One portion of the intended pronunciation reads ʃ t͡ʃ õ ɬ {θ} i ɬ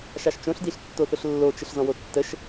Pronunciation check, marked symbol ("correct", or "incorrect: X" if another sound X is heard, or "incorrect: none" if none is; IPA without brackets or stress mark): incorrect: d